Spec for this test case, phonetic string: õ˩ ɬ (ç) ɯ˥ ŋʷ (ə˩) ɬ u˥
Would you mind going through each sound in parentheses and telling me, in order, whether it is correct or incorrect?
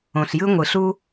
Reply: incorrect: j, incorrect: ɯ˩

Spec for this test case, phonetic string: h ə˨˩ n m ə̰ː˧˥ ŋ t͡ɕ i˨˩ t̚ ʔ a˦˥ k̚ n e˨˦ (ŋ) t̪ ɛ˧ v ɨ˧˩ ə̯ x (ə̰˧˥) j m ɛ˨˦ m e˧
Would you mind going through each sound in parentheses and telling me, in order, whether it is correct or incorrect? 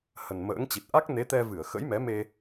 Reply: incorrect: none, correct

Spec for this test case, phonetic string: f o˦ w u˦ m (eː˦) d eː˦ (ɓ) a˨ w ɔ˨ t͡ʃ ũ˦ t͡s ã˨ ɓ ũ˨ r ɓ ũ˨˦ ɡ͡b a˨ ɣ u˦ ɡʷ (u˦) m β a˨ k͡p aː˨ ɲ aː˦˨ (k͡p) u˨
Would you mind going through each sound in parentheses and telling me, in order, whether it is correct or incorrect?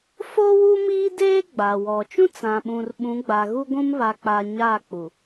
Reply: incorrect: iː˦, incorrect: ɡ͡b, incorrect: ũ˦, correct

